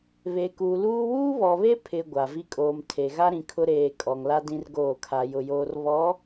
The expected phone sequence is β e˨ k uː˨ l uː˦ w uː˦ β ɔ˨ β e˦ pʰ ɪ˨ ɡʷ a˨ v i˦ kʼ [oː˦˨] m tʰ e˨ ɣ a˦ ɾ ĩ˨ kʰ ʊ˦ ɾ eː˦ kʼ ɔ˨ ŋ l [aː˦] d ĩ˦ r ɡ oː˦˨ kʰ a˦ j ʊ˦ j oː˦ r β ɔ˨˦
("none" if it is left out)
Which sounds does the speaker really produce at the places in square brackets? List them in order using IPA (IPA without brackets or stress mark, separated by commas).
oː˨, a˦